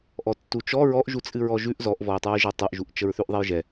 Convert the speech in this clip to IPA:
ʔɔtːut͡ʃɔ ɹɔʔ ʒut͡sʼɨɹɔʒʉʔ zɔʔvɔj tˤɨɹʒɛtˤʉʔʒuʔ t͡ʃəɹθʉʔðˤɛjʒɛ

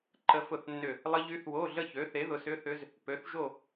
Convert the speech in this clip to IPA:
ǃə˦˥fʊ˥˧θnːʏ˥˧ | lˠə˦˥ʎy˦˥θwo˧˥˧ ɮə˥˧çø˨˥θe˨˥ ðʊ˨˥sʏ˧˥˧θʏ˦˥z | pø˨˥θʒo˥˧

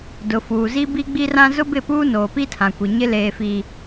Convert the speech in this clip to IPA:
dʊ˨fuː˨zi˦ bi˦ɡ͡bi˦rã˦ zʊ˦bɪ˦˨puː˦noː˨ pi˦tʰã˨kʷi˨ɲɪ˦ leː˦fi˦

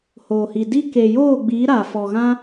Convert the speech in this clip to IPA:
hoː˨hi˨di˦ ke˨joː˦˨ɡ͡biː˨˦ ɾa˨ fɔ˨ɣã˧

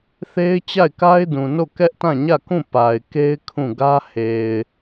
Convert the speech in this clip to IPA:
θe˦ɪ̯ t͡ɕa˦˨ɪ̯ka˦ɪ̯dũ˨no˦˨ kɛ˦ʔtã˦˨ɲä˦˨kũ˦˨ pa˨ɪ̯ ke˦ɪ̯ kʰũ˦˨ɡä˦ he˨ɪ̯

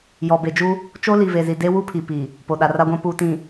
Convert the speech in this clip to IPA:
jɔ˨be˨d͡ʒu˦ | t͡ʃo˦li˨ve˨zi˨ de˦wu˦pʰi˨pi˨ | po˨ɗa˨ ra˦ɡʷã˦ puː˨tĩ˨

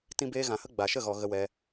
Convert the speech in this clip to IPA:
tĩ˧beː˧ɣã˨hə˦ ɡ͡ba˨ʃə˦˨ɣɔ˨ ɣə˧wɛ˧

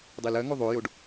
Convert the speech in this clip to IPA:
dˤilɜŋo ðˤojoɖ

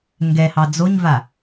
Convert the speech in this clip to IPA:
ŋɡɛhɑ d͡zoɲva

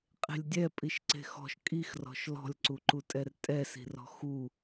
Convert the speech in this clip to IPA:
qʼe̤lʲdʲɛ pʼiʃǀe̤xɔ̤ʃ kʼixrɔ̤ʃ lɔ̤lʲǀuǃutʼɛr tʼɛsi̤rɔ̤ xu

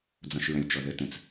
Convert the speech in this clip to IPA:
d͡zɔ̃ʃɹœ̃lʲt͡ʃɔðə tə̃t͡s

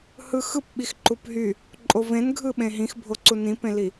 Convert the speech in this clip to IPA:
hɯxɯpɓix ǃupɦy | ǃʼovẽnɡʱɯ ɓẽɦĩxbʱo ǀunĩpẽli

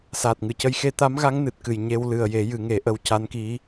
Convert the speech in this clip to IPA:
saː˨˩t̚ŋɨ˨˩˨cə˧j xe˧t̪a˧˥mɣa˧˥ŋ nɨ˨˩t̚kɨ˨˩j ɲe˧w lɨ˨˩ə̯je˨˩˦ jɨ˨˩˦ŋe˨˩˦ʔə˧˥w ca˧˥nki˧˥

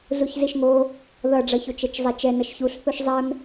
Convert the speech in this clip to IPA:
zuçziʃŋo | ðʌɖ͡ʐʌçot͡ʃ ɛt͡ʃzˤɛt͡ʃɛnʌʃ çuɬθoʃ zˤɛm

